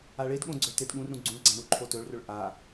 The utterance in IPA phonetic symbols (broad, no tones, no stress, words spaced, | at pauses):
aɭedɠõ ɡ͡ǀɵtedɠũrɾũ ɡ͡ǀũɭɡ͡ǀã ɳuǃʰotɵɭrɵɭ ʔa